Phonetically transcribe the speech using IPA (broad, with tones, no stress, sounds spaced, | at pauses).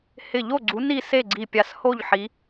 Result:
h ɪ˧˩ ʎ o˥˨ ɡ͡ǀ u˨˦ n i˥˨ s e˥˨ ɡ͡ǀ i˧˩ pʲ a˧˩ s h o˥˨ ʎ ħ i˨˦